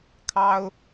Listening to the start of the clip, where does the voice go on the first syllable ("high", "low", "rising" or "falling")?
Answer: high